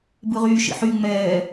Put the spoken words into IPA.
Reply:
b ɯ ʁ yː ʃ ḭ ħ y ŋ͡m ɛː

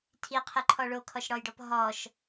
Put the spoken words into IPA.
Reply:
tʰ i qʰ ɪ ǃʰ ɔ ɭ o kʰ ɔ ʃ ɽ ɔ j ɖ ɔ p ɦ ɔ ʃ

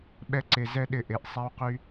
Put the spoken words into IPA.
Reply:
ɓ ɛ˧ ǀ e˨ z ɛ˦ ɗ ɪ˧ ʔ e˨ ʔ sˤ ɛ˦ w q y˦

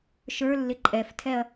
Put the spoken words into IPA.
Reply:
ʃ ə˞ lː ɪ ǃʼ ɛ f tʰ ɛ ɐ̯

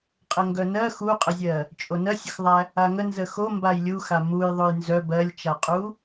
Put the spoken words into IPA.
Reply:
qʼ ə ŋ ɡ œ n ɜ x u qʼ ə zʲ ɜ | t͡ʃʼ o n ɜ sʲ ə x ðˤ æ | a ŋ ə n z ə x o m b a j lʲ u x a m u j ðˤ o j n z œ b ɜ lʲ t͡ʃ a qʼ u

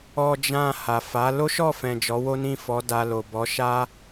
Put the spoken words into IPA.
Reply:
ɔ˧ d͡ʒ ã˧ h a˨ f a˨˦ l o˦ ʃ ɔ˦˨ f ɛ̃˨ d͡ʒ ɔ˨˦ w o˦ n ĩ˦˨ f ɔ˨˦ d a˧ l o˨ b ɔ˨˦ ʃ a˦

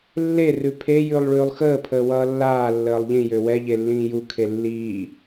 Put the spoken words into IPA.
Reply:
lː e r ʉ pʰ e j ʉ lˠ ɭ ʉː lˠ x əː pʰ əː w ʌː lː aː lː əː lˠ ʎ ĩ j ø w ɛ ʎ e lː ĩː j u kʰ e lː iː

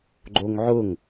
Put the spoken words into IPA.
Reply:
ɡ͡ǃ o ŋ ʕ ʊ ŋ

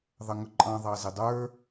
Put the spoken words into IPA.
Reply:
ðˤ ə ŋ ʊ ǃʼ ɑ̃ ðˤ ɑ z ɪ dˤ ə˞

